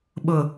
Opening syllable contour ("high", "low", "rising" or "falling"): low